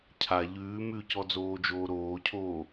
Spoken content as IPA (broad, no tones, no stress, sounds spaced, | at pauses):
cʰ a ʎ ʉː m ʉ c ɔ d͡z oː d͡ʒ oː ɾ oː cʰ oː